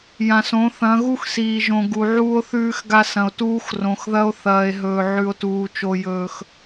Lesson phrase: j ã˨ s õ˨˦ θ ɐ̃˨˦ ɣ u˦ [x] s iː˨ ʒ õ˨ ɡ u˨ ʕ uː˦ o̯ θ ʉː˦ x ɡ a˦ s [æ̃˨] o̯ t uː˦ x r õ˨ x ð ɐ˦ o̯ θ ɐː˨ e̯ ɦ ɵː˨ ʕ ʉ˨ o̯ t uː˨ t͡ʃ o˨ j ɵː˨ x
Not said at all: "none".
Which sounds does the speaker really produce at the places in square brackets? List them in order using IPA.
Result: x, ɐ̃˨

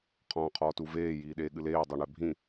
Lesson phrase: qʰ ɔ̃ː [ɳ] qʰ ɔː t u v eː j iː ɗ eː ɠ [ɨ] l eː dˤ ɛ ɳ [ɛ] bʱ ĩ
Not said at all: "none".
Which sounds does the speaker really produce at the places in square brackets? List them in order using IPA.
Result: none, ɨ, ɛ

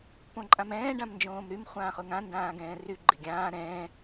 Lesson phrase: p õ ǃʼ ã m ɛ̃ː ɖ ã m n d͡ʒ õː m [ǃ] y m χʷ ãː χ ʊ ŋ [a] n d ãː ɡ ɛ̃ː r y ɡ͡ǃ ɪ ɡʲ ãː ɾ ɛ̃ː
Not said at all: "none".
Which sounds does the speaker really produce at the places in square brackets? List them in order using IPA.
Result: ɾ, ã

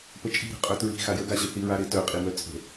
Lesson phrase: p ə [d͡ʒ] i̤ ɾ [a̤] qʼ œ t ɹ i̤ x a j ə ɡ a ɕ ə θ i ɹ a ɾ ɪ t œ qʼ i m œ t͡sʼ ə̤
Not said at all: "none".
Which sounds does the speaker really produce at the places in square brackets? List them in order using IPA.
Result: t͡ʃʼ, ə̤

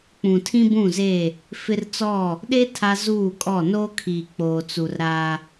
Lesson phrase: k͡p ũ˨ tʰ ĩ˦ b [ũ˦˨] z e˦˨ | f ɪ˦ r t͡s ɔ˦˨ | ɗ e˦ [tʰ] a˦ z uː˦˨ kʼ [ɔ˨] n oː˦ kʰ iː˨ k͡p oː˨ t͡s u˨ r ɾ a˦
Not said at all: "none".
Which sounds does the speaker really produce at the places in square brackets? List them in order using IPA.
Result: ũ˦˨, tʰ, ɔ˦˨

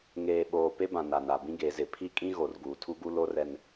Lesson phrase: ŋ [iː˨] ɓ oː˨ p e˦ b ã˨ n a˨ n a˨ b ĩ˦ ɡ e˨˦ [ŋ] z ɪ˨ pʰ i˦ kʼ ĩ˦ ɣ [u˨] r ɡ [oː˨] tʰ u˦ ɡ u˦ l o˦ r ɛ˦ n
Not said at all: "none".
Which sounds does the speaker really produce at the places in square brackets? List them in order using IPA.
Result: eː˨, none, o˨, uː˨

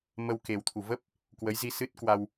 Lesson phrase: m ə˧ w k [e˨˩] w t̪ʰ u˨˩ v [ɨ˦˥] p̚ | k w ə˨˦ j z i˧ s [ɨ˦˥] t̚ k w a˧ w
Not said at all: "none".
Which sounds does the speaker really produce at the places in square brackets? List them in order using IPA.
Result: e˨˩, ə˦˥, ɨ˦˥

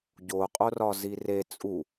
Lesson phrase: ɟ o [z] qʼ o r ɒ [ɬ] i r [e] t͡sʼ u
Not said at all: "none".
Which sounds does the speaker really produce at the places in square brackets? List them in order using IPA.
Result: none, z, e

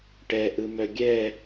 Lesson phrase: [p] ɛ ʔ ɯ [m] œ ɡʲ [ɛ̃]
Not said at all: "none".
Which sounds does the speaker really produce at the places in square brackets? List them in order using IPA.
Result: ʈ, m, ɛ

